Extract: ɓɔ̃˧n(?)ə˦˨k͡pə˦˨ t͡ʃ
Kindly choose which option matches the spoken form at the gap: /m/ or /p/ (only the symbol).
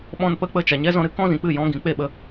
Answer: p